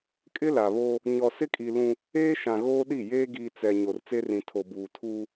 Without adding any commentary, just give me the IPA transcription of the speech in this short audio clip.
kʼ ɪ˦ l a˨ β oː˦ | ɲ ɔ˨ s ɪ˦ kʼ i˨ l ũ˦ | eː˦ ʃ ã˨ ɣ oː˦ ɗ i˦˨ j eː˦ ɡ iː˨ t͡s ɛ˨ ɲ o˨ r t͡s e˦ r ĩ˨ tʰ o˨ b uː˨ tʰ uː˦

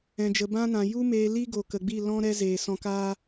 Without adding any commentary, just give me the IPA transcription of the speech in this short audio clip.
ɛ̃˨ d͡ʒ ə˨ b ã˦ n ã˨ j u˦ m eː˧ l i˦ ɡ o˨ k ə˨ ɡ͡b i˦˨ l ɔ̃˦ ɾ ɛ˦ z eː˨ s ɔ̃˧ k aː˦

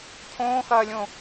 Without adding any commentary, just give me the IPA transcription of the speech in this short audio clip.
cʰ õː x ɐː lʲ õ

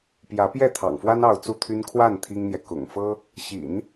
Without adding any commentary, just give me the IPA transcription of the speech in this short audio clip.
p j ä˧˥ p j ɛ˥˩ t̪ʰ ɑ̰˨˩ ŋ f w a˥ n ɑ˥˧ ʊ̯ t͡s u˥˩ t̪ʰ y˥ n kʰ w a˥˩ n t̪ʰ i˥ ŋ n̪ j ɛ˨ k ʊ̰˨˩ ŋ f ɤ˥ | ɕ ḭ˨˩˦ n

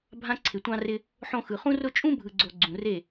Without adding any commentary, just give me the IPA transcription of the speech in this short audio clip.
bʱ ã˧ ǀʰ ɪ˨ tʷ ɑ̃˧ r ɪ˧ | ħ õ˧ x ɯ˨ χ ũ˦ r ʊ˦ t͡ʃʼ ũ˦ bʱ ɯ˨ ɡ͡ǀ o˨ ɡ͡ǀ ũ˨ r e˦˨

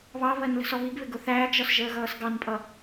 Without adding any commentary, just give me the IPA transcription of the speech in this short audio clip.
β ɑ β ɜ n l ə̤ s ɔ β i ɡ β ɪ ɡ ʊ θ æː ɡ ʒ ɒ s ʒ əː ɣ ʌː s ɡ ɑ n pʼ ʌ

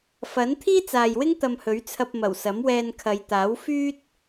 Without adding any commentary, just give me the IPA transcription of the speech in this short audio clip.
f ɐ˨˥ n t̪ʰ iː˥ t͡s aː˨ j w ɪ˥ ŋ t̪ ɐ˧ m h ɵ˨˥ ɥ t͡sʰ ɐ˧ p̚ m ɐ˨˩ w s ɐ˨˥ m w ɛː˧ n kʰ ɐ˨˧ j t̪ aː˨˥ w f yː˥ t̚

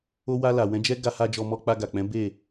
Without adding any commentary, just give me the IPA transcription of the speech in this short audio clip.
o˧ w a˧ l a˨ w ɛ̃˨˦ d͡ʒ ɛ˦ ɡ a˧ h a˧ d͡ʒ ɔ˧ m ɔ˧ k͡p a˧ ɡ a˨ k͡p ɛ̃˨˦ b e˦˨

